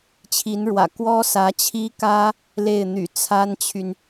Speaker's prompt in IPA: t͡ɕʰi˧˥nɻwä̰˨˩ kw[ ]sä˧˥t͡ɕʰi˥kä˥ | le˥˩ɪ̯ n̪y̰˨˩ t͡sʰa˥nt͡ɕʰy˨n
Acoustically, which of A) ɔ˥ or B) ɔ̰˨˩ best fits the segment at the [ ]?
A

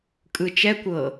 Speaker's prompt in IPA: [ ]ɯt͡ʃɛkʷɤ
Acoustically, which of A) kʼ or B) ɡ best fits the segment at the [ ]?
A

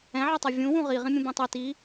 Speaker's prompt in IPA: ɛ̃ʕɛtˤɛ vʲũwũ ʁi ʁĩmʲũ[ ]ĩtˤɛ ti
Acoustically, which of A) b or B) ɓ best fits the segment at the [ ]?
A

